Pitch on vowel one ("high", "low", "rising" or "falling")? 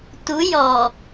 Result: rising